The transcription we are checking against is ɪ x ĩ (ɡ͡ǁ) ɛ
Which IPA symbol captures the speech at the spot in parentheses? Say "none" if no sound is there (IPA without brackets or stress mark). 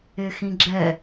ɡ͡ǁ